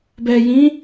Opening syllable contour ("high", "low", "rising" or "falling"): low